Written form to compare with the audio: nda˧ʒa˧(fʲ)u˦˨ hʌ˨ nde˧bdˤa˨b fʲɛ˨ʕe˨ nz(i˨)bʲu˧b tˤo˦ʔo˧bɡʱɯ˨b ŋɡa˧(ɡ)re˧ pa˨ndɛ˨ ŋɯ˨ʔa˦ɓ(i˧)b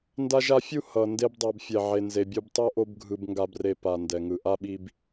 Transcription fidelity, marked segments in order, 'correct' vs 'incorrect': correct, incorrect, incorrect, correct

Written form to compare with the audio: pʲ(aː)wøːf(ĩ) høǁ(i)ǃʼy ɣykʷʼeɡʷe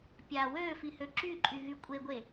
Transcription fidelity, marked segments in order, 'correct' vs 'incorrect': correct, incorrect, incorrect

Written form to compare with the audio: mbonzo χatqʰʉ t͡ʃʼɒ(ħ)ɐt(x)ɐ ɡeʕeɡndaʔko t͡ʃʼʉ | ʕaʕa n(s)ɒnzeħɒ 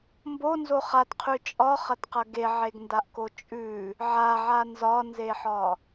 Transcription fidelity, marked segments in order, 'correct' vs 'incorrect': incorrect, incorrect, incorrect

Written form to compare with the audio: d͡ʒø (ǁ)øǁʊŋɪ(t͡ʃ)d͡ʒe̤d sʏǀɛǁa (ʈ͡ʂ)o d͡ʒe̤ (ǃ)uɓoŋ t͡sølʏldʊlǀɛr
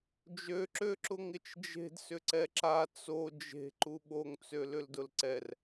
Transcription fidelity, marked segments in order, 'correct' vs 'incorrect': correct, correct, incorrect, correct

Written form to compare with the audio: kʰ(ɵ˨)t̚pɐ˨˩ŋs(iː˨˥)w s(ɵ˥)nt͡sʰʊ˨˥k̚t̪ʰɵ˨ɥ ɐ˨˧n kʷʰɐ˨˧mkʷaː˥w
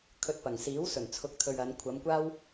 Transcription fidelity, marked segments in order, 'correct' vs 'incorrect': incorrect, correct, incorrect

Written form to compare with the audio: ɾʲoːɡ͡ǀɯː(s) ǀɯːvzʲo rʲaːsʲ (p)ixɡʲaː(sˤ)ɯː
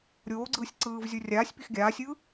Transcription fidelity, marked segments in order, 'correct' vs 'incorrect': incorrect, correct, incorrect

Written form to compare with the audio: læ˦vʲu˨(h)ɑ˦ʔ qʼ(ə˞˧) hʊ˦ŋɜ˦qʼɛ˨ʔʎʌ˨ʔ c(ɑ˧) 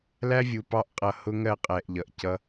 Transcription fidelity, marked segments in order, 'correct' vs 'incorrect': incorrect, incorrect, incorrect

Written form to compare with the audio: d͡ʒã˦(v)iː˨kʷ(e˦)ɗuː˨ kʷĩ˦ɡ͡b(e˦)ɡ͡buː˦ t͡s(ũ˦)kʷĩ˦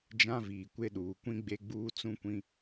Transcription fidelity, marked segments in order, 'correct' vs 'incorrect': correct, correct, correct, correct

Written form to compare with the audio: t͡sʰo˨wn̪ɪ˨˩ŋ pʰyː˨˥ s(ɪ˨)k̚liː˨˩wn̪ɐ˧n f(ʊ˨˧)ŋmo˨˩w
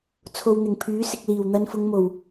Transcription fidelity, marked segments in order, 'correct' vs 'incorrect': correct, correct

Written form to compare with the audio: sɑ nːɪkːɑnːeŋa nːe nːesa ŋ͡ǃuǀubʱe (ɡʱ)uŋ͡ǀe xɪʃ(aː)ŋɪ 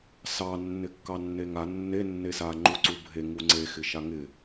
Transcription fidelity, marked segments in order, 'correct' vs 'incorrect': incorrect, incorrect

